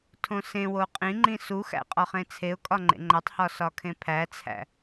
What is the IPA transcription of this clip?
tʰ õ s ẽ w o qʼ ĩ ŋ͡ǃ ĩ s u x æ̰ qʼ ɒ χ ẽ t͡sʰ e ʊ̯ kʼ ɒ ŋ͡ǃ ḛ ŋ͡ǃ æ tˤ h ɒ s ɒ kʰ ẽ pʰ æ t͡sʰ æ̰

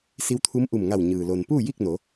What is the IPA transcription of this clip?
s i˧˥ w t̪ʰ u˧˥ m ʔ u˧˩ m ŋ a˧˩ w ɲ ɯː˩ l o˩ n p uː˥˨ j i˥˨ k̚ n o˩˧

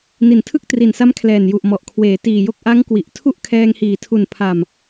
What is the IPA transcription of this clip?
n i˨˩ n tʰ ɯ˥˩ k̚ t r i˨˩ n s a˦˥ m kʰ l ɛː˨˩ n j u˨˩ ʔ m ɔ˨˩ ʔ kʰ w eː˩˦ t iː˨˩ j o˥˩ k̚ ʔ a˦˥ ŋ k w i˨˩ ʔ tʰ u˥˩ ʔ kʰ ɛː˧ ŋ h iː˨˩ tʰ u˨˩ n pʰ a˨˩ m

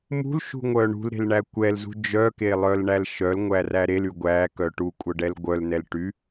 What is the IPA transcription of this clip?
m ṳ l ʃ ṳ ŋʷ œ ɳ ṳ l ɾ e̤ l ɳ æ kʷ ɛ l z ṳ d͡ʒ œ k e lˠ œ l ɳ æ l ʃ œ l ŋʷ æ r æ ɾ e l y ɡʷ æ k œ ʈ u kʷʼ œ ɖ ɛ l ɡʷ œ l n ɛ l ʈ y

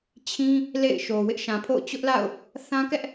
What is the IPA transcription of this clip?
t͡ɕʰ ĩ˦ | l ḛ˦˨ ɪ̯ ʃ o˨ w ɪ˦ ʔ ʃ ã˨ pʰ o̰˦˨ ʊ̯ t͡ɕ ʊ˦ ʔ l a̰˦˨ ʊ̯ | θ ã˦ k ɛ˦ ʔ

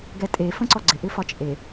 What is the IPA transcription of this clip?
ɡ ɛ tʼ e f ə̃ ǀ ɔ ɡ͡ǀ ɪ ʔ ɪ f ɒ t͡ʃʼ e

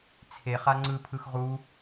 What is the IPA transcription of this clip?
t͡sʰ e χ a ŋ͡ǀ ɯ pʰ ɯ x ʁ u

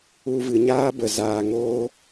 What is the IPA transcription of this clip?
u˧ v ɨ˨ ɲ aː˦ b ə˨ z aː˨ ŋ oː˧

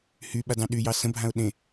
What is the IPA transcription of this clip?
h y ɓ a d ɑ̃ ɗ y j ɑ s ə̃ bʱ ã ʊ̯ ɗ ẽ

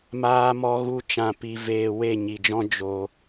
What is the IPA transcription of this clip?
m aː˧ m ɔ˧ ɣ u˧ t͡ʃ ã˧ p i˧ v eː˧ w e˦˨ ɲ i˨ d͡ʒ ɔ̃˦ d͡ʒ o˧

